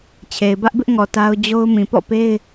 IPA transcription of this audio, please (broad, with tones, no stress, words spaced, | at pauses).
t͡ɕʰe˨ɪ̯bä˦ʔbɪ˦ʔŋɔ˨ ta˦ʊ̯d͡ʑo˦ʊ̯ mĩ˨pɔ̰˦˨pe˦ɪ̯